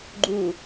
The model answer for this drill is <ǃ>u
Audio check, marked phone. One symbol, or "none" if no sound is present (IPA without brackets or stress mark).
ɡ͡ǃ